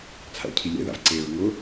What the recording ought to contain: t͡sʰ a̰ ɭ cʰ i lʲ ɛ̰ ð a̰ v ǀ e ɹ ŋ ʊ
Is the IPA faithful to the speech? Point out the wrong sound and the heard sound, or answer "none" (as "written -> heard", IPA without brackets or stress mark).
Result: none